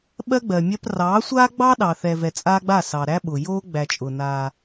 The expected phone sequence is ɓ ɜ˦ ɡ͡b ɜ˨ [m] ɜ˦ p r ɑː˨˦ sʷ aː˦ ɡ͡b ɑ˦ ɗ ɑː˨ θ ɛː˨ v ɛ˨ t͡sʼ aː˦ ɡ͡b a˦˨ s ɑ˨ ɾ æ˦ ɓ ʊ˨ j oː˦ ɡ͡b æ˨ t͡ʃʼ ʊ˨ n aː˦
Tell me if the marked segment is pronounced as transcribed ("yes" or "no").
no